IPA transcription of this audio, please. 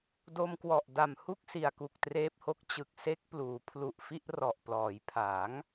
do˧mkwɔ˨˩ʔda˨˩mhu˥˩k̚ si˨˩a̯ku˨˩k̚treː˦˥p̚ho˦˥k̚ t͡ɕɯ˨˩k̚ se˦˥k̚ pluː˩˦pʰlu˨˩ʔfi˥˩ʔ rɔ˨˩ʔplɔː˩˦jpʰa˩˦ŋ

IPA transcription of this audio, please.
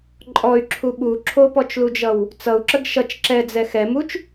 ǃʼɔy̯ǁʰu ɓu ǁʰopɔt͡ʃlud͡ʒʌw | t͡sʌu̯ǁəɡ ʃʌt͡ʃ ǁɛd͡zɛ xɛmut͡ʃ

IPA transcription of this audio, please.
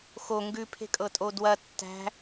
xo ŋɡʉpʰe̤kʼɤtʼo dwɐ tːæ̤

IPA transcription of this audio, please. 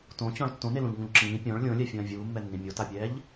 tõt͡ɕɔ̃ɭ tːõnelũʎŋũʎ ǁĩː pʲɔ̃ɭ lʲõlʲɛfʲɐ̃ː vʲuːmːɛnːĩ mʲotapʲɛːʎ

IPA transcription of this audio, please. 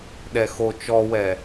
ɗɛxo t͡ʃɔwɛ

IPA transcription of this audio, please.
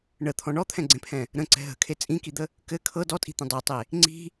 ɳət̪ʰɔ̃ ɳɔt̪ʰɛ̃ɡ͡ǀẽpʰɛ̃ | ɾə̃ǀɛ̤ ɦə̤kʰe t͡sʼĩkid̪ə | kɘ kʰɤ dɔtʼi̤t̪ɛ̃ dˤɤtˤe | ŋ͡ǀi̤

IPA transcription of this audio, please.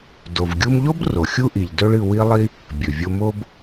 do˩v ɡʲu˧mʎo˥b ro˩xʲu˥ʔi˩ʎ dɵ˥ɭɨ˧ wi˥lˠi˥ | bʲɵ˩vʲo˧mo˥b

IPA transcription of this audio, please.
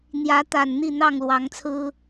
n̪jä˨˦t̪a˨˩nn̪i˥˨ n̪ɑ˥˨ŋlwɑ˨˦ŋt͡sʰɹ̩˦

